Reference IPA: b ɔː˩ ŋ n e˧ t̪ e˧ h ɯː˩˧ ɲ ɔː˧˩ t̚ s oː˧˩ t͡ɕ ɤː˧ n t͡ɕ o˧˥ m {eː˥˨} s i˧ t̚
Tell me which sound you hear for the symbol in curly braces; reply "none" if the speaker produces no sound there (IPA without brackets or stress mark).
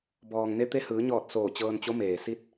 eː˩